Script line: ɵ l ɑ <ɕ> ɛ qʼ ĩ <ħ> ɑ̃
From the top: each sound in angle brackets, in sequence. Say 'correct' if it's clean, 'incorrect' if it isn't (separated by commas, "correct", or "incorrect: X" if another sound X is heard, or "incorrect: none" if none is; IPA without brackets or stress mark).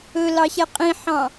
correct, correct